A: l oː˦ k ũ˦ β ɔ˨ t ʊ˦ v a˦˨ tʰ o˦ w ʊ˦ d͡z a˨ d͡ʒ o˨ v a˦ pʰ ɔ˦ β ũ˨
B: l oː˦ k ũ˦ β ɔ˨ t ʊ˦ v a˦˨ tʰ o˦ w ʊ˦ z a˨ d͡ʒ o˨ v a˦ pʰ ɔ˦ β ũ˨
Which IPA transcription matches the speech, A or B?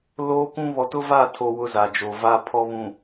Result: B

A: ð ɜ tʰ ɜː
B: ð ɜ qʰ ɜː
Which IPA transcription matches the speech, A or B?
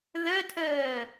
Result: A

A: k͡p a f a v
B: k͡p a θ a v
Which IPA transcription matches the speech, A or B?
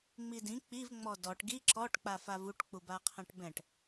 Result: A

